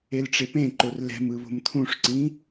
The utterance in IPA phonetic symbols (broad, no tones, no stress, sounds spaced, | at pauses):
e l ʈ͡ʂ e p ẽ ǃ o r l ɛ̤ m ɯ β o̤ m t̪ʰ ũ ʂ ǀ ĩ